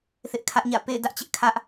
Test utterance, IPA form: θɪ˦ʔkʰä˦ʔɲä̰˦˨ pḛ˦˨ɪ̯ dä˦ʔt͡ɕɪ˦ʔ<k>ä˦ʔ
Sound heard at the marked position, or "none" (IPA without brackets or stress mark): kʰ